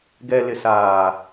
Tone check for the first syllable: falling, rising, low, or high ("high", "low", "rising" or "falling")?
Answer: low